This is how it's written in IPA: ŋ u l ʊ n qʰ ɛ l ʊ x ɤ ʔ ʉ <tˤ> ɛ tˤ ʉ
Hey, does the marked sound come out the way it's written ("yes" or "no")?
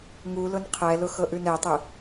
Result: no